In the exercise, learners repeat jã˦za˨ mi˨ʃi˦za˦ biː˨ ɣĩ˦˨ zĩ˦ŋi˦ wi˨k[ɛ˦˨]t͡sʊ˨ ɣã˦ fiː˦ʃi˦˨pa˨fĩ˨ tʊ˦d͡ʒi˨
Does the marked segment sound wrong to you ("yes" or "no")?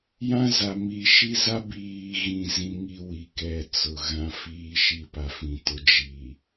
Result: no